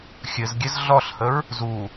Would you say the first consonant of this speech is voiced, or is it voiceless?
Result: voiceless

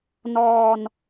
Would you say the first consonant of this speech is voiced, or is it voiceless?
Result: voiced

